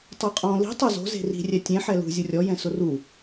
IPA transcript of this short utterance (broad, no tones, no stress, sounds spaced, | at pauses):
tˤ o qʼ ɔ̃ l i̤ tˤ o z o̤ z e̤ r i̤ rʲ ɛ tʲ ẽ ħ ɛ l ṳ zʲ u rʲ ɔ j ɛ̃ s ʊ r u